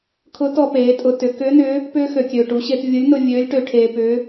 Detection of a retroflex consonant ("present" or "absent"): present